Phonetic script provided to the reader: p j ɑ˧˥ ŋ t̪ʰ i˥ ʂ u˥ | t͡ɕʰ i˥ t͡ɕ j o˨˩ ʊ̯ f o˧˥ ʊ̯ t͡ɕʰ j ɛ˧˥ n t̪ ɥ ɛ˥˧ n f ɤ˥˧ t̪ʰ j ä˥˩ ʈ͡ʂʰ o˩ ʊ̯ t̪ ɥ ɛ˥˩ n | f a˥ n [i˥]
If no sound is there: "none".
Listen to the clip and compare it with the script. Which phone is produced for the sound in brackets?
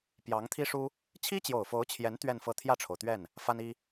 i˥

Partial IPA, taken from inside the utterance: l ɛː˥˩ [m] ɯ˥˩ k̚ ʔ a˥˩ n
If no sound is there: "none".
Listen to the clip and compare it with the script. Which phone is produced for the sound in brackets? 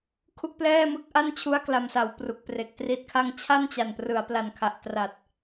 m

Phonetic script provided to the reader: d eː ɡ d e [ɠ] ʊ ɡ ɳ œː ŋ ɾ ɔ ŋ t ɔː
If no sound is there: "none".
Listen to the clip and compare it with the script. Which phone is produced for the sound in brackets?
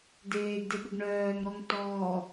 ɠ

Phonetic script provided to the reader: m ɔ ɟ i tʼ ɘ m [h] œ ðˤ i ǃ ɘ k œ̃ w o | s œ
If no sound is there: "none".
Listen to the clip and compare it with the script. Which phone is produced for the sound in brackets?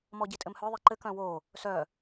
h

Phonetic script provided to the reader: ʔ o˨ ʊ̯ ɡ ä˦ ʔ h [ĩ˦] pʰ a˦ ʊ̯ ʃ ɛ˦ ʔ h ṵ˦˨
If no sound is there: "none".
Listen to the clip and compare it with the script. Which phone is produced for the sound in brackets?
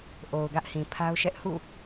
ĩ˨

